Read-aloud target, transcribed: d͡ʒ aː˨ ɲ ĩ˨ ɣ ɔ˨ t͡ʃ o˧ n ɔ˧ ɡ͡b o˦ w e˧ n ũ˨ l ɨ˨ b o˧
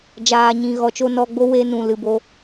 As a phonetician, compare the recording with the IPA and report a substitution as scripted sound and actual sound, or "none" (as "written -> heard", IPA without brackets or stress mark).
none